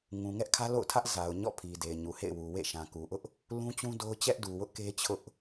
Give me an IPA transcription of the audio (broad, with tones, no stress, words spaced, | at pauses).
ŋũ˨ŋɛ˦ʔkʰä˦ lo̰˦˨ʊ̯tʰä˦ʔ za˨ʊ̯ɲɔ̰˦˨ pʰi˨de˨ɪ̯ɲu˨hḛ˦˨ɪ̯ wu˨wḛ˦˨ ʃã˨ku˨ʔʊ˦ʔ | lũ˦t͡ɕũ˦ do˦ʊ̯ t͡ɕɛ˦ʔdu˨wʊ˦ʔ ke˦ t͡ɕʰʊ˦ʔ